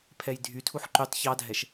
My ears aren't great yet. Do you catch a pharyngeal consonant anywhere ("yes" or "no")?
yes